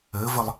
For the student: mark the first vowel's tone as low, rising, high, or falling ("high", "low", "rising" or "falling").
rising